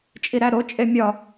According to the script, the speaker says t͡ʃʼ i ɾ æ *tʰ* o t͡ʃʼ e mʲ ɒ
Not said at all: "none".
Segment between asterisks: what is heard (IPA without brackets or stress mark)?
ɾ